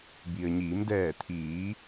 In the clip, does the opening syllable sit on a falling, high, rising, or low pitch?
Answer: low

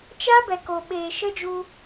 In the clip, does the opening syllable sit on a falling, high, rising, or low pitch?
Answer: high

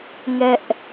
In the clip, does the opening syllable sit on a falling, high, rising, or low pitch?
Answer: high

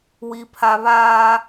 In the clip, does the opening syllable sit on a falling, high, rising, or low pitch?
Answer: high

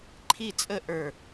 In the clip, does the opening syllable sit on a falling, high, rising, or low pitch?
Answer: falling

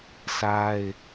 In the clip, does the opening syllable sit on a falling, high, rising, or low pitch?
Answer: high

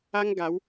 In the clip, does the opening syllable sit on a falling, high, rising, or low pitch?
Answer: high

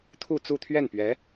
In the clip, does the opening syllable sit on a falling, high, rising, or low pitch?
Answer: falling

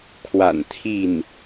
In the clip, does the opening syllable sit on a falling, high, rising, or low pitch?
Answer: low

